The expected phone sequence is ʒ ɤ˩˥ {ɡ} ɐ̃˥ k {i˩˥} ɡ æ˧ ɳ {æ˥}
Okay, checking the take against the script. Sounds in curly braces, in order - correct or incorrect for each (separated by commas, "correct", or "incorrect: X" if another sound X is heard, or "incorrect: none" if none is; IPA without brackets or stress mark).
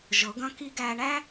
correct, incorrect: i˥, correct